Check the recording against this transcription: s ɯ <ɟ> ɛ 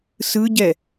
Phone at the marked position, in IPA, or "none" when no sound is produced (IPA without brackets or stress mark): ɟ